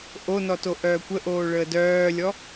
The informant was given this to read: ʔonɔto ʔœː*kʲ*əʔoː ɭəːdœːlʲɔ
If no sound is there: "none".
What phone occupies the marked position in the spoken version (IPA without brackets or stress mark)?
kʷ